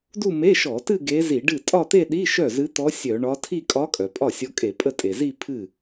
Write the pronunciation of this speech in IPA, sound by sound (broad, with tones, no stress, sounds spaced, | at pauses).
d u˥˧ m e˧˥˧ ʃ ɔ˧˩˧ t ɨ˥˧ ɡ e˧˥ z i˧˩˧ ɖ ɨ˥˩ tʼ ɒ˥˧ t̪ e˥˧ ɗ i˧˥˧ ʃ œ˥˩ z ɨ˧˥ t̪ ɔ˧˥ sʲ œ˧˩˧ ɳ ɒ˧˥ tʰ i˥˧ kʼ ɒ˧˥ kʼ œ˩ pʼ ɒ˥˩ sʲ ɔ˧˥ kʼ e˧˩˧ pʼ ə˥˩ tʼ e˩ z i˥˧ pʰ ɨ˥˩